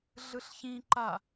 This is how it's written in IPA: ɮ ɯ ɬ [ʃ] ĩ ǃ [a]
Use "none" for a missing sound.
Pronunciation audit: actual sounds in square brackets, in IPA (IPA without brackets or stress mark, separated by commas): ç, a